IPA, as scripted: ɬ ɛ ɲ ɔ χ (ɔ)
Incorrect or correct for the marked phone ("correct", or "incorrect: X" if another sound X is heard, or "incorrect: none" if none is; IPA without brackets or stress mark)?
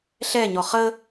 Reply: incorrect: ə